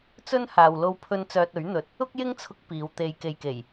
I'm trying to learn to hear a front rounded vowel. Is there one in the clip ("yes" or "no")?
yes